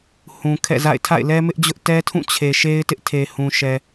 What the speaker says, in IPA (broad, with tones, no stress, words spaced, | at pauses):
hũ˨ kʰɛ̰˦˨za̰˦˨ɪ̯ tʰa̰˦˨ɪ̯lɛ˦mɪ˦ʔd͡ʑʊ˦ʔ tɛ˦tʰũ˦˨ t͡ɕʰe˨ʃe˦ɪ̯tɪ˦ʔtʰe˨ hũ˨ʃɛ˨